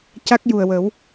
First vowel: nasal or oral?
oral